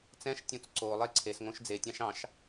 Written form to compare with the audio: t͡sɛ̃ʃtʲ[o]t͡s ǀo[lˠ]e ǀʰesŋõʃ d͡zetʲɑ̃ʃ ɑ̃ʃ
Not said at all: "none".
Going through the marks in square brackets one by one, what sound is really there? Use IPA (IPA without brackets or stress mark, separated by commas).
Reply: õ, lˠ